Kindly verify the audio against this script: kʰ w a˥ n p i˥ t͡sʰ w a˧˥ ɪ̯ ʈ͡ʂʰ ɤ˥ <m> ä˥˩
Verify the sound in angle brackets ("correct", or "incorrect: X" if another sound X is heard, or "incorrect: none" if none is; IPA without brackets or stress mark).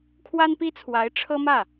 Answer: correct